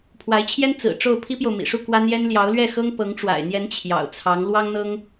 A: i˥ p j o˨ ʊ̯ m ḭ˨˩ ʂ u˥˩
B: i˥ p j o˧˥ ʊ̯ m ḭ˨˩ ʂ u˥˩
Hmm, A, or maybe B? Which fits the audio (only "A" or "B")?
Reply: A